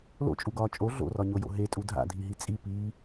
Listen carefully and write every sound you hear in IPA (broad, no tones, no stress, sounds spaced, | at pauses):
l o̰ t͡ʃʼ u ɡ ɒː t͡ʃʼ o ɮ o̰ r ɒ ɲ o j o̰ ɦ e tʼ u dʱ a̰ dʱ i ɦ i t͡sʼ i p iː